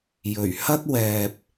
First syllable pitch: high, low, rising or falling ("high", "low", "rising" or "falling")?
low